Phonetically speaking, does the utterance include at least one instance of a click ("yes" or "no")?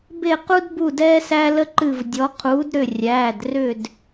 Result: yes